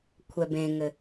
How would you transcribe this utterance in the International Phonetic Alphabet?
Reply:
kʷʰ ɛ b ẽ ŋ ɘ

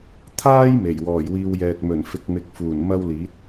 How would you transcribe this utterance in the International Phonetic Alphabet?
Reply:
t̪ʰ aː˥ j m e˨˩ j w ɔː˨˩ j w iː˧ w j ɛː˨ t̚ m ɵ˨˩ n f ɪ˧ k̚ m ɪ˧ k̚ f uː˨˩ n m ɐ˥ w l iː˨˥ t̚

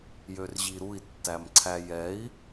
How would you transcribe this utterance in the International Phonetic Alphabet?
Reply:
j ø r ʑ i ɾ u i̯ tː æ m ǀʰ æ j ɛ i̯

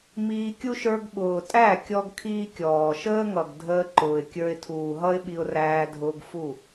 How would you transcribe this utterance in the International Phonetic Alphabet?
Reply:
m iː˧ kʲ u˦ ʃ ə˞˧ ɡ ɓ ʊː˨ tʼ æ˦˨ kʲ ɔ˦ ɡ kʰ iː˦ kʲ ɔː˨ ʃ əː˦ ŋ ʌ˨ ɡ dʱ əː˧ ǃ ʊː˨ ɪ̯ kʲ ə˞˧ ɪ̯ tʰ uː˨ ɦ ʌ˦ ɪ̯ ɓ i˧ ʊ̯ r æː˧ dʱ ʊː˧ ɡ f u˦˨

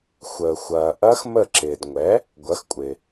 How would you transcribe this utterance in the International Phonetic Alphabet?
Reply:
xʷ əː˨ xʷ ɐː˨ ʔ ɐ˦˥ x m ə˦˨ ǁ ɪː˨ d ŋʷ ɛ˨˥ | ɡʷ ɐ˨˥ x kʷʼ ɪ˨

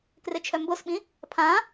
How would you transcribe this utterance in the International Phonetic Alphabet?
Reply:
k r ɪ t͡ʃʰ œ m b o s ɓ ĩ | pʰ ã

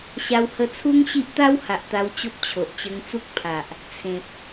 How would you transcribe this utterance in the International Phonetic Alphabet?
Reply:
ɕ a˧ w h ə˧ t͡sʰ u˦ ŋ ɕ i˦ ʔ t̪ a˦ w h a˨ ʔ t̪ a˧ w t͡ɕ o˦ p̚ t͡ɕʰ o˨ ʔ t͡ɕ ə˧ ŋ t͡s u˦ k̚ pʰ a˨ ʔ | t͡sʰ ẽ˨ p̚

